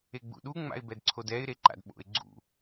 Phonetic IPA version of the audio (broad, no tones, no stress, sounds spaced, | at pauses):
e ɡ͡b ṵ ɗ u ŋ͡m a̰ ɪ̯ b ɛ d ǀʰ o d ɛ ɪ̯ ɾ e ǃ a̰ d ɓ o̰ ɪ̯ ɡ͡ǀ ṵ